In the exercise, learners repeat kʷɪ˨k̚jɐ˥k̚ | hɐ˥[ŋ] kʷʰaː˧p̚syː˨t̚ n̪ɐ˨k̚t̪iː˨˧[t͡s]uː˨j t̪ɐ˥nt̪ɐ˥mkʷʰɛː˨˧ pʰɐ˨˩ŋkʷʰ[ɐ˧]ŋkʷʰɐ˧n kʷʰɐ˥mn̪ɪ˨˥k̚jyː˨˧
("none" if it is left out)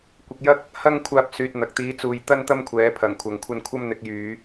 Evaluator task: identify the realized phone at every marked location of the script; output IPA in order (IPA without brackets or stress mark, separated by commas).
ŋ, t͡s, ɐ˨